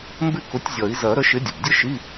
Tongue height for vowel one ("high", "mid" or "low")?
high